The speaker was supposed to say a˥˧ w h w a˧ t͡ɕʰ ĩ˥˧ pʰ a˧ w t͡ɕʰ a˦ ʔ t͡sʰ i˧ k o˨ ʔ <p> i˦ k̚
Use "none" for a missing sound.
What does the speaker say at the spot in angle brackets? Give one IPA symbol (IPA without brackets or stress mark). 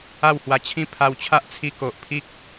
pʰ